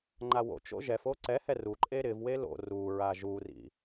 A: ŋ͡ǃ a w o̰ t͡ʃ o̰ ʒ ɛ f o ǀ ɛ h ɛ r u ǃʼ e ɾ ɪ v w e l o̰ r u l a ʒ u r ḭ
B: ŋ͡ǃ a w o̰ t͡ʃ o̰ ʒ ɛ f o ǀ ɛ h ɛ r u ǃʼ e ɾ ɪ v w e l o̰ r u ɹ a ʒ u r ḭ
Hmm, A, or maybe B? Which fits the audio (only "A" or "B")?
B